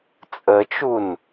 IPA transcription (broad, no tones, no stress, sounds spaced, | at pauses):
t͡sʼ ə t͡ʃ u n